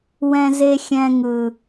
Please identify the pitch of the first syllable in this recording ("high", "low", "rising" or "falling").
low